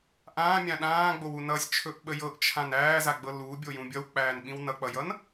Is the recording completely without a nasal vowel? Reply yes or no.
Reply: no